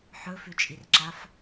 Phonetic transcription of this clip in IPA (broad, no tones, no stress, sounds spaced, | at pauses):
ħ ɵ f ʉ t͡ʃʼ i r ǁ a f